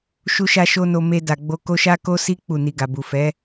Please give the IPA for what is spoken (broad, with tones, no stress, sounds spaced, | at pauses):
ʃ u˦ ʃ a˦ ʃ o˦ n o˧ m e˧ d a˨ ɡ͡b o˧ k o˧ ʃ a˦ k o˦ s i˦ k͡p u˦˨ n i˧ ɡ a˨ b u˨ f ɛ˨˦